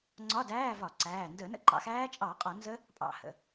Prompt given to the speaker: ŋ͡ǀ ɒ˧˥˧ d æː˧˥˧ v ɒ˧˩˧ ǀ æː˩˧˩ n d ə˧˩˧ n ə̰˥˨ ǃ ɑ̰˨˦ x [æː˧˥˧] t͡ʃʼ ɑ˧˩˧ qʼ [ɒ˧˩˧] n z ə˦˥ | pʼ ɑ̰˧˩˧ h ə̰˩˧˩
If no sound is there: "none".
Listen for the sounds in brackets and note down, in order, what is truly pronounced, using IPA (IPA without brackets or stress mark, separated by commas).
æː˦˥, ɒ˧˩˧